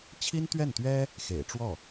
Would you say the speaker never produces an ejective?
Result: yes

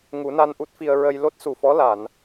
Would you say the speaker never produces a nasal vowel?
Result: yes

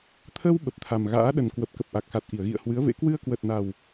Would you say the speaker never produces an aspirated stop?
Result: no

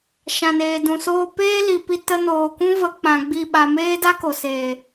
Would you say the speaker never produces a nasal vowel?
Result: no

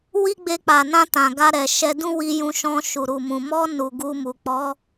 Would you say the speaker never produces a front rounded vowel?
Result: yes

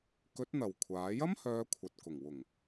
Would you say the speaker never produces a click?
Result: yes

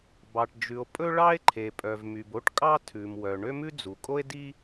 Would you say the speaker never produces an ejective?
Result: no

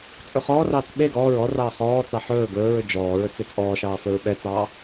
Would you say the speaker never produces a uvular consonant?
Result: no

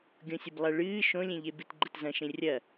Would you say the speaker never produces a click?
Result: no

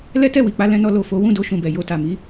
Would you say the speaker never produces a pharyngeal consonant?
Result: yes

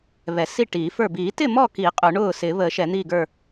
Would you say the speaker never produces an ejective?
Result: no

